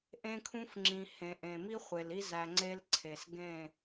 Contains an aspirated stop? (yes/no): yes